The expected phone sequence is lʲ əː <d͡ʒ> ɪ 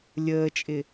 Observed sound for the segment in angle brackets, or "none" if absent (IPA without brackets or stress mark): t͡ʃʼ